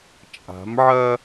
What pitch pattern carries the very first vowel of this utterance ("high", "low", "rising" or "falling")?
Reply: rising